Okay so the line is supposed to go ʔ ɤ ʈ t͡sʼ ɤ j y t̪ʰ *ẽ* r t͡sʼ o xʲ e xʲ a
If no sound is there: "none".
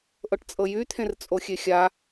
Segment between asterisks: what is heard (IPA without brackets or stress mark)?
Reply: ẽ